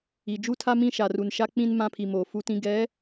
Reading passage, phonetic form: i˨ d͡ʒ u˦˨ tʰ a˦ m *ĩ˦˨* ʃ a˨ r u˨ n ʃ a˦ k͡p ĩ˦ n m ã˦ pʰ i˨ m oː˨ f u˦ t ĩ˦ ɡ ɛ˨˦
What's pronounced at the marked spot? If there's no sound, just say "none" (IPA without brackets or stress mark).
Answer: ĩ˦˨